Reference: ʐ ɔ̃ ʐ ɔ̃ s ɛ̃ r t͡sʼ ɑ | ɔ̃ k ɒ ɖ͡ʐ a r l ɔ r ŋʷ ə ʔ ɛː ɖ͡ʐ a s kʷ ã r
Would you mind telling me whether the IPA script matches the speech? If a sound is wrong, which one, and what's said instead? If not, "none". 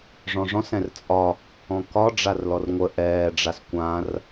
ɑ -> ɒ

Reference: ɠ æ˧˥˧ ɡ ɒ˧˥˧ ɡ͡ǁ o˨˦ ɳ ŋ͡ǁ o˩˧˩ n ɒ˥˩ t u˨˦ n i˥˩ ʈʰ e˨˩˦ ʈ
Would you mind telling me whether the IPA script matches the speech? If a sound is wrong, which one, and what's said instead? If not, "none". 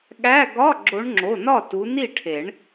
ʈ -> ɳ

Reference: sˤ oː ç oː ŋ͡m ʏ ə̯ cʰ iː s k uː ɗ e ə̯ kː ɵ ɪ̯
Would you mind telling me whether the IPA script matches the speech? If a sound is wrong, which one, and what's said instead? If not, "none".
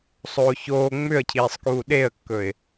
s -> sˤ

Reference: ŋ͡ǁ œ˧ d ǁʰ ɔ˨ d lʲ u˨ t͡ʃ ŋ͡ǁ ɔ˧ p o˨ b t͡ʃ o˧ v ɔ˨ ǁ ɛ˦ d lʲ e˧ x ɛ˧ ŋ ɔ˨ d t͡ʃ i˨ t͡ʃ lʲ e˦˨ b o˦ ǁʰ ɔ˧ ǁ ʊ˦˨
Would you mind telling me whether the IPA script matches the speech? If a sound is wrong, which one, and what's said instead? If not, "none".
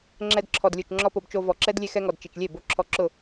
œ˧ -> ɛ˧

